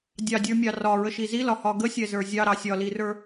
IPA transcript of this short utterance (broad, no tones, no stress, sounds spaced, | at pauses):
dʲ ɑ dʲ ə˞ mʲ ɑ r ɒ ɹ ə ʃ i z i l ɒ h ɒ ɡ ə sʲ ɛ z ə˞ zʲ ɑ ɾ ɑ sʲ ɒ l i r ə˞